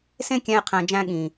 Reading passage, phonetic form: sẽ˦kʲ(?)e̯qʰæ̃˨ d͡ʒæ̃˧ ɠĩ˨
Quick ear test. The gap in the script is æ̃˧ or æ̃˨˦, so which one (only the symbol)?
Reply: æ̃˧